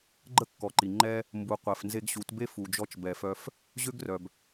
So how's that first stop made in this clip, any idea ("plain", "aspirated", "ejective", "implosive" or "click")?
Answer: click